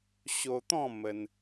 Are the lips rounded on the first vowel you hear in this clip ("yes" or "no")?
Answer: yes